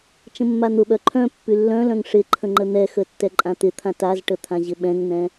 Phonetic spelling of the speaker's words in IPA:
t͡ʃə̃mːan̪ʊɓœ ǃʰœ̃ pːylːœ̃lœ̃ŋ ʂɪǃʰə̃ ŋ͡ǃən̪ɛxə tːɛǃʼãt̪ɪt̪ʰã tazʈə t̪ʰãʑɪɓɛ̃ŋn̪ɛ̃

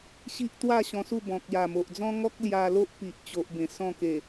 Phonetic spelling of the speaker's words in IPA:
ɕi˦ʔt̪wa˥˧ ɕɔ̃˧su˥˧ bɔ̃˨k̚ja˨˩mo˨ʔd͡zɔ̃˦ ŋɔ˦k̚ lja˧lo˦ʔpi˨ʔt͡ɕo˨ʔ bẽ˨˩ sɔ̃˥˧ke˨˩

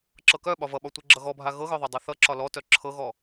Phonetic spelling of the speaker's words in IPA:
ǁɤkœ ɓɒvʌɓɒ tʷeɡ͡ǁʌɣɔbʱa ɣɤɣœðˤœ dˤœθʌ ǁɒlɔtœ ǁʰɤɣɔ

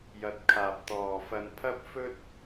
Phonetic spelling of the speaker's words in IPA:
jɐ˨t̚kʰaː˨p̚ t̪ɔː˨ fɐ˧npʰɐ˥p̚ fɵ˥t̚

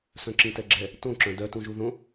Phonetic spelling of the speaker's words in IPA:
sœ̃ǁĩtɛɡ͡ǁɛ | tõǁœ̃ dœtũʒu ðõ

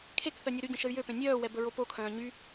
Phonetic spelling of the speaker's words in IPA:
kʰekθœ nʲoɾyɟə̃ ʃəy̯jøpẽ nʲœːwɛ bəɹopokʰœ̃ː ɲy

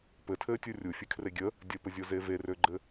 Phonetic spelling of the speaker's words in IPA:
pɘtʰɘːtʲu rʲufʲɘkʰre ɡʲə | dʲəpəzʲoze verøɡ͡ǃɘ

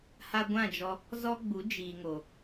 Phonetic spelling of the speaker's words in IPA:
ha˧ɡʷã˦˨d͡ʒɔ˧ | zɔ˦ɡ͡bu˨˦ d͡ʒiː˨ŋo˨

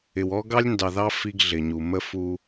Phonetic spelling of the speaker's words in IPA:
ɪ˨wɔ˦ ɡɑ˦lʲndɑ˨ðɑ˦ fi˦ɡɮɪ˨ɲu˨ mə˦ fu˦

